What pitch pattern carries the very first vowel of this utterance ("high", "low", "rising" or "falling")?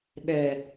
low